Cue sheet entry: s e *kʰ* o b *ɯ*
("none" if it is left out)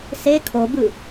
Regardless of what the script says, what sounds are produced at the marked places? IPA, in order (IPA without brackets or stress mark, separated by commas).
kʰ, ɯ